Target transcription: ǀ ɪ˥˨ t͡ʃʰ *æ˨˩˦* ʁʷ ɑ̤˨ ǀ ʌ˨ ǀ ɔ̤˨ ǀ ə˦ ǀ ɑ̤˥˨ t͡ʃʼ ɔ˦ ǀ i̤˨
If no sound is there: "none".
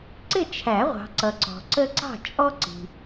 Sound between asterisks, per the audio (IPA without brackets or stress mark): æ˨˩˦